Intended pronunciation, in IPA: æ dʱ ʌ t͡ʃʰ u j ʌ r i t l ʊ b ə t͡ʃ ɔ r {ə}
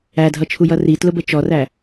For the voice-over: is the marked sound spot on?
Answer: no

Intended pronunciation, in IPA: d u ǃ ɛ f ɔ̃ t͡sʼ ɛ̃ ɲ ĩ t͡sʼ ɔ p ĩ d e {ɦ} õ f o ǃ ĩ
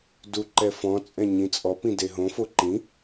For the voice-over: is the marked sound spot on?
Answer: yes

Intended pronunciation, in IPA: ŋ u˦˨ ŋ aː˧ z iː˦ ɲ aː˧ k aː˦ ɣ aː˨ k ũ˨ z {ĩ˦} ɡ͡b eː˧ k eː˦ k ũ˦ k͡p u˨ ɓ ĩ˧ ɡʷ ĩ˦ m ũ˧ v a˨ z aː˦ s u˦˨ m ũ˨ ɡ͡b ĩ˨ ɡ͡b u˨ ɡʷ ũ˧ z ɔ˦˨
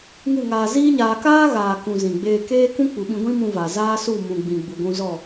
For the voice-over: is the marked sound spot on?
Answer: no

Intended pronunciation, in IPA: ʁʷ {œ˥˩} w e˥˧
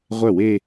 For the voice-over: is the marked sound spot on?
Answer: yes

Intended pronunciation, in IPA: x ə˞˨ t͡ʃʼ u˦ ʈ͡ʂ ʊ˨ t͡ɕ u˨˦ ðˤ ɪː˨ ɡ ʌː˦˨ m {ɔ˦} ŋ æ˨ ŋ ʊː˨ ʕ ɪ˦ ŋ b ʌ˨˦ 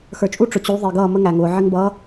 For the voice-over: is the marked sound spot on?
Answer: no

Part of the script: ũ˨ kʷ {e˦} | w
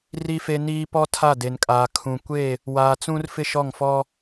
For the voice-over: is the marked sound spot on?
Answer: no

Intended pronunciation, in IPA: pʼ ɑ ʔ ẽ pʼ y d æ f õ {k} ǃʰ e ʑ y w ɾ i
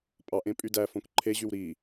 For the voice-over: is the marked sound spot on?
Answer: yes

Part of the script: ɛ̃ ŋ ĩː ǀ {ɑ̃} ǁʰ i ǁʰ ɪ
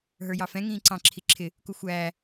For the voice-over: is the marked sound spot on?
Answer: yes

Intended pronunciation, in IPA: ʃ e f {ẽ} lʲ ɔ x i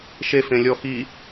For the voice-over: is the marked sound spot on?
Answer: yes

